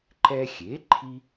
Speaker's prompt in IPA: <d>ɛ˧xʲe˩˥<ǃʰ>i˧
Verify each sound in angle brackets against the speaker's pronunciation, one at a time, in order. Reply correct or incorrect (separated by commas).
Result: incorrect, correct